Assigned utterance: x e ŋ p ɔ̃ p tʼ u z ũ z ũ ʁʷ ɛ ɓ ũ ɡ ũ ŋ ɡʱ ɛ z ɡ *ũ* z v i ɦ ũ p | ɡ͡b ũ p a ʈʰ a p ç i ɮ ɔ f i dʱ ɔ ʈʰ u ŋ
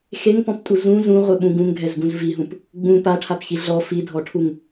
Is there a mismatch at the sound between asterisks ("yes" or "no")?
no